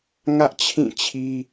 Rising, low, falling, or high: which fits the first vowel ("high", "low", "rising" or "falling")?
high